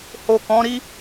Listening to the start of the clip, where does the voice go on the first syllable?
low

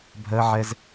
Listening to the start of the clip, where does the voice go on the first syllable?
high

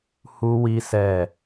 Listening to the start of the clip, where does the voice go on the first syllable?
high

